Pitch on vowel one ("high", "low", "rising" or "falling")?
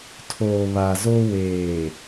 low